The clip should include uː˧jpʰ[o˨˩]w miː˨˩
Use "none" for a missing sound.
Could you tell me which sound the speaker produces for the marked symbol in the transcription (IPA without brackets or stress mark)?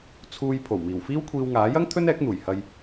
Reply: o˨˩